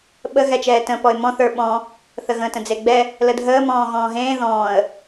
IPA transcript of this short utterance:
ɓ ə ɣ ɛ t͡ʃ ɛː t ə̃ p ɔ ɪ̯ m ɔ̃ θ ə˞ ɓ ɔ̃ | θ ə ɣ ə̃ t ə̃ d͡z e ɡ͡b ɛ | l ə dʱ əː m ɔ̃ː ɣ ɔ̃ː ɦ ẽː ð ɔ̃ː ə̯

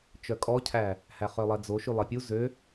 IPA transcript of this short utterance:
t͡ʃ œ kʼ ɔ cʰ æ | h æ χ œ lˠ ɛ d͡z o ʃ y lˠ e pʲ u z ø

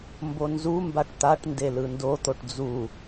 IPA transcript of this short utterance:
m b o n z u m b a ʈ t̪ a ʈ n d e l ɯ n d o t̪ o ʈ d͡z u

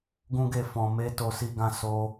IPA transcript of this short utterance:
ɡ ũ˦ ɡ e˦˨ f ɔ̃˨ m e˧ t o˧ s i˧ ɡ ã˧ s o˧

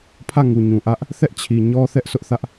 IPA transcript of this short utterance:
pʰ ä˦˨ ŋ u˨ ɲ ũ˨ ʔ ä˦ ʔ | θ ɛ˦ ʔ t͡ɕʰ i˨ ɲ ɔ˦ θ ɛ˦ ʔ s ʊ˦ ʔ θ ä˦ ʔ

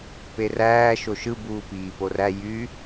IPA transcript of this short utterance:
p e r æː ʃ o ʃ ɯ b uː p iː p o r æ j y

